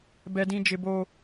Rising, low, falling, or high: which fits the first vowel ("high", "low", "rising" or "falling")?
high